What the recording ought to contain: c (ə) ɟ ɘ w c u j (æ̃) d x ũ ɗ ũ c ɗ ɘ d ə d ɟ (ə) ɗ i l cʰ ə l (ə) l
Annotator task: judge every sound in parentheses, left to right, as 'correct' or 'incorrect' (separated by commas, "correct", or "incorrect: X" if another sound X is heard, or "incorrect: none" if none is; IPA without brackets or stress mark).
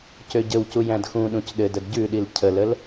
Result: incorrect: ø, correct, incorrect: ʉ, correct